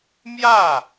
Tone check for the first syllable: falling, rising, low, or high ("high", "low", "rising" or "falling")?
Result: falling